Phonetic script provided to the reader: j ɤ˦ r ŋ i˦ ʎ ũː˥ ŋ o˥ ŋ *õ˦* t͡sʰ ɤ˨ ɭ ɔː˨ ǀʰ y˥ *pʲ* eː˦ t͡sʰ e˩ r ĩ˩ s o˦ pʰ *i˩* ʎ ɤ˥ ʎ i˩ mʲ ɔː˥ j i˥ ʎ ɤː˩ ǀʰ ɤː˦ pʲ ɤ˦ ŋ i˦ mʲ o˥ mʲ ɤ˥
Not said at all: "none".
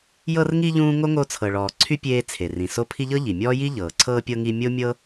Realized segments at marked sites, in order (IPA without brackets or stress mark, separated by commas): o˦, pʲ, i˦